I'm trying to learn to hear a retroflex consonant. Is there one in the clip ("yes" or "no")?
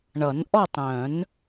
yes